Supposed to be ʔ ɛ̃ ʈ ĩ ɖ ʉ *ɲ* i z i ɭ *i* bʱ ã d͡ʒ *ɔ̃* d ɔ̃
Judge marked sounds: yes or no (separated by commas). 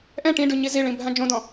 yes, no, no